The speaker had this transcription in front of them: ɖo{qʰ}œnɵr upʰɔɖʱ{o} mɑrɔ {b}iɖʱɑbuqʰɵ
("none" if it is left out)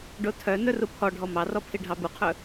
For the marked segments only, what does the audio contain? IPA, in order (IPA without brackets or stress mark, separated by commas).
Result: tʰ, ɔ, pʰ